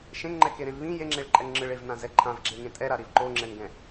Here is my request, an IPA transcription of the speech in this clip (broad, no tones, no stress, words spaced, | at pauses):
ʃẽŋŋ͡ǃɛkeɾẽv βĩ jeŋ͡ǁeɭǃʼɛŋŋ͡ǁɯɭ evnãzɛ ǃʰãvɡ͡ǁeŋẽ tʼɛɾaɾiv ǃoŋ͡ǁɛnɡɛ̃